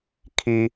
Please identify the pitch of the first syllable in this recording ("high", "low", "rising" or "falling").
high